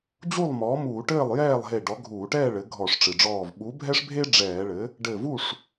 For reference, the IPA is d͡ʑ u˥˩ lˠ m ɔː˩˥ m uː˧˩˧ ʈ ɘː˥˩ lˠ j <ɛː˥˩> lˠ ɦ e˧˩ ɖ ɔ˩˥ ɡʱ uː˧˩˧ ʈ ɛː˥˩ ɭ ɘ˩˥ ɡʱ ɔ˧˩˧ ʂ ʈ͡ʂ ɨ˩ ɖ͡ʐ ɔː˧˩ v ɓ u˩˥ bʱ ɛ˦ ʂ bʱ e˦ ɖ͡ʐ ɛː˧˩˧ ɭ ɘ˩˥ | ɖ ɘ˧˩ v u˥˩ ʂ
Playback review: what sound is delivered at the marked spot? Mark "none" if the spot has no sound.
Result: ɛː˥˩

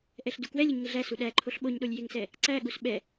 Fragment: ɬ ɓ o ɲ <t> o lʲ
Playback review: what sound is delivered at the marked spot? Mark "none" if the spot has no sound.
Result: ɗ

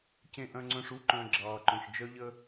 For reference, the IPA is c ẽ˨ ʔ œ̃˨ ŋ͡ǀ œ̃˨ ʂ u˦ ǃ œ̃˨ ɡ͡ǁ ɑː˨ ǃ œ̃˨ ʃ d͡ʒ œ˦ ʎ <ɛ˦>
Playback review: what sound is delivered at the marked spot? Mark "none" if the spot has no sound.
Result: ə˦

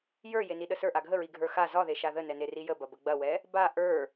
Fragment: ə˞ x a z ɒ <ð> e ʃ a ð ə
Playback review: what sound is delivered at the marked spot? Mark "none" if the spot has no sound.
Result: ð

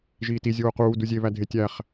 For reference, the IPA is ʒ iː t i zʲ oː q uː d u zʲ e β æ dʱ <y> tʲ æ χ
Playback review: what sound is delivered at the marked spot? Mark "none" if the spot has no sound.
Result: e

